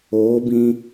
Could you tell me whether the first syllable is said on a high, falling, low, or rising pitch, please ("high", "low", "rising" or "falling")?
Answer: rising